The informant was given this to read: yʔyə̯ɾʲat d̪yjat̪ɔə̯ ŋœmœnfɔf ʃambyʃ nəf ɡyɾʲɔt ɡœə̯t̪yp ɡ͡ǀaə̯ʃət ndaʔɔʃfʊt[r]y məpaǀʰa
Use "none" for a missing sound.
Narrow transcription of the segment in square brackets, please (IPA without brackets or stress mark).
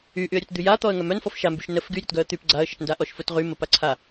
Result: ʁ